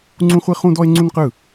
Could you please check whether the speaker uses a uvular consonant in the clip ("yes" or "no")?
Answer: yes